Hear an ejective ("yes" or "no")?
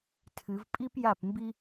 yes